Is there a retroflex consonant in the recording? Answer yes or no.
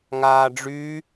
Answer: yes